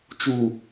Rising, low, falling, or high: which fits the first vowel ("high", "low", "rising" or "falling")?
low